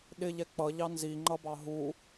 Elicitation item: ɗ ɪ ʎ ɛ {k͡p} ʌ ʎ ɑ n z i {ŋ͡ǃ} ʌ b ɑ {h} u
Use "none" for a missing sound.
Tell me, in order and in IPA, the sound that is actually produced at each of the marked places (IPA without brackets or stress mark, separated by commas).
k͡p, ŋ͡ǃ, ɦ